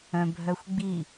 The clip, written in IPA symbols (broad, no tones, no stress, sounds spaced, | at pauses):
œ̃ bʱ œ xʷ ɡ͡b i